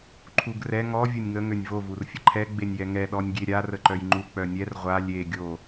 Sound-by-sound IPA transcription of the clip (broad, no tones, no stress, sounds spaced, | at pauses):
ǃʰ u ɡ r ɛ ŋ ɔ vʲ o nʲ ŋ ə ŋ ø nʲ v o v u r fʲ ə ǃʰ ɛ ɡ͡b e nʲ j ɛ ŋ ɛ ɗ ɔ nʲ ɡʲ e ɾʲ a r ə ǃ œ j ŋ͡ǃ u k͡p œ nʲ ɛ r ʁʷ a lʲ e ɡʲ o